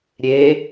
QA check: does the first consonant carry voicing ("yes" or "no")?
yes